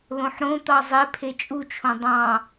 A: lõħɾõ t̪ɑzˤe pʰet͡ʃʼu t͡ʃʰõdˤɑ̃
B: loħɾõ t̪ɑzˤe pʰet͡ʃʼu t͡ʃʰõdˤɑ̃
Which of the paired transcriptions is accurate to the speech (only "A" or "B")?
A